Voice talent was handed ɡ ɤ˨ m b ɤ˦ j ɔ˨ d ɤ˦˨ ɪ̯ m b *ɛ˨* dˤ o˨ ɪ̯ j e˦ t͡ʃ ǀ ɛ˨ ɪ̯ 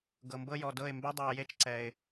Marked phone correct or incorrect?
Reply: incorrect